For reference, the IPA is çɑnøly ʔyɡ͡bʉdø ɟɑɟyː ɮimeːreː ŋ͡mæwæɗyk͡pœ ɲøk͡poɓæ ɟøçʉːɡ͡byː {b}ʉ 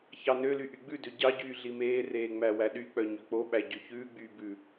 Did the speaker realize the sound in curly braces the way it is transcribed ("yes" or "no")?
yes